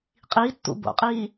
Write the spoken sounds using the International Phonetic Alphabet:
qʼ i tː ṵ b o̰ qʼ iː

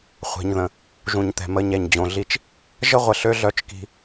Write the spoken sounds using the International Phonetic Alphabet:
χʷ ɛ̤˨ ɲ ð ə̃˨ | ʒ ũ˨ ɲ t̪ ɛ̤˨ m ə˨˦ ɲ ɛ˨ ɲ d͡ʑ õ˨ ɮ i˦˨ t͡ʃ | ʒ ə˦ ʁʷ ə˨ ɬ ø˦ ɮ œ˦ t͡ʃ k i̤˦

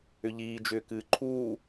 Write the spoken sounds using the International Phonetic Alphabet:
ʏ ʎ iː d͡ʒ ʏː k ɨː ǃʰ uː

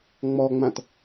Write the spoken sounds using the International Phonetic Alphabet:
ŋ͡m ɔ ŋ͡m ã t

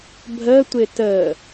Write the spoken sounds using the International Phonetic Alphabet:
bʱ ə tʷ ɪ t ə

